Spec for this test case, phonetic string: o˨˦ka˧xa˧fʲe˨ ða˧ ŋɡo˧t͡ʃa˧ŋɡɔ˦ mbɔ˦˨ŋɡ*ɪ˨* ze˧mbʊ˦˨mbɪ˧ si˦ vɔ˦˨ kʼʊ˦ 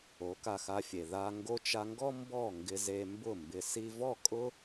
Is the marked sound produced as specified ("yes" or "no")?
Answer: no